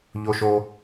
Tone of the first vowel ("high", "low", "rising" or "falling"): high